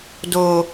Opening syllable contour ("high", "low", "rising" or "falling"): low